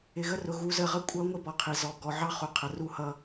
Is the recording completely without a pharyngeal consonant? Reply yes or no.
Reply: no